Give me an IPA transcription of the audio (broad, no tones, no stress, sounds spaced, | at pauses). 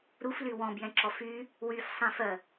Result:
ɾ u f l y w ɔ̃ b j ɛ̃ ǁ ɔ f y | w y f sˤ ĩ f ɜ